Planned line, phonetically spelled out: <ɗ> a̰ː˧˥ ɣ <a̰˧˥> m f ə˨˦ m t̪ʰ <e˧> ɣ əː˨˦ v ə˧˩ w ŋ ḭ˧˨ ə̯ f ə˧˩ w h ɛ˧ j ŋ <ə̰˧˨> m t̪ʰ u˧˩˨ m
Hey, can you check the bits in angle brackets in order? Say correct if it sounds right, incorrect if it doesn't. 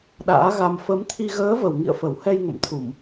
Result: correct, incorrect: a˧, incorrect: i˧, correct

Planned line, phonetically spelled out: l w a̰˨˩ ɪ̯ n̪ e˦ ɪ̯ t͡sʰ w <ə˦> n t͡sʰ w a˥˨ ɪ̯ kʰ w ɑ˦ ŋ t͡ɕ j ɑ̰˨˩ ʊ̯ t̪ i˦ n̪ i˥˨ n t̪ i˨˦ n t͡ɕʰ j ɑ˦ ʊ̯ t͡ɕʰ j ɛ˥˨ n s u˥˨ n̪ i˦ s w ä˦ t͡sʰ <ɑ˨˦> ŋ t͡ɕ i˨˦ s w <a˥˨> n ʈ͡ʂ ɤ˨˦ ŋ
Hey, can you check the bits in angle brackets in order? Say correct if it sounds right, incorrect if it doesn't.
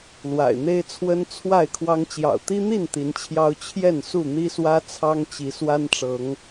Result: correct, incorrect: ɑ˦, incorrect: a˦

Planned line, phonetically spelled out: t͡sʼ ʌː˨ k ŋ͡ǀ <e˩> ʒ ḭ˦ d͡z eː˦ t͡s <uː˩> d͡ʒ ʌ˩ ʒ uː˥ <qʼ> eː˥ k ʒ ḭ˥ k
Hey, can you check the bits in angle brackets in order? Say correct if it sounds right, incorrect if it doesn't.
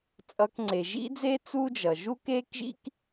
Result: correct, incorrect: uː˦, incorrect: k

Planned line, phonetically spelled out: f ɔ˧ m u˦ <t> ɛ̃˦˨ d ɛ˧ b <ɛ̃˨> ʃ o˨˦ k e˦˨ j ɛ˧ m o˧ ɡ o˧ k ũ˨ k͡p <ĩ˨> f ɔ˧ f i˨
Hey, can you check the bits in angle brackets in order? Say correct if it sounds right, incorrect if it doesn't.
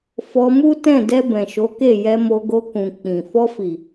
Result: correct, correct, correct

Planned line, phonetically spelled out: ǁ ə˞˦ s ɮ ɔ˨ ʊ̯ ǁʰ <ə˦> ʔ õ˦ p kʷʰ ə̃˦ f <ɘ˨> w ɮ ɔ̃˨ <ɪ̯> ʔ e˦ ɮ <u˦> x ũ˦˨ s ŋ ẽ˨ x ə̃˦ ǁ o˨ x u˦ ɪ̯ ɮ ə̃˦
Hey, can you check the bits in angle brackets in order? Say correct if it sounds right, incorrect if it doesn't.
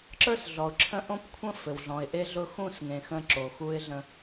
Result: incorrect: ə̃˦, correct, correct, incorrect: ʊ˦

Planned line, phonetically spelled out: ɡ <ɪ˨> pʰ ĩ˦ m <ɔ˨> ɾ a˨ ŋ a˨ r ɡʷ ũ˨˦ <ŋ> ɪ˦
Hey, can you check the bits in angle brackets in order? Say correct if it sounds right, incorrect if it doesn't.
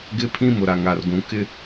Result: incorrect: ɪ˦, incorrect: ʊ˨, incorrect: k

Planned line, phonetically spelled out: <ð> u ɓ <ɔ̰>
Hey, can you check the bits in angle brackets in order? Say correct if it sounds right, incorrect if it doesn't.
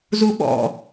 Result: incorrect: z, correct

